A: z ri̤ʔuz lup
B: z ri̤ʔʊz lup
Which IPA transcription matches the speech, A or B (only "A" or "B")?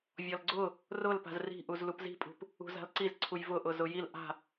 A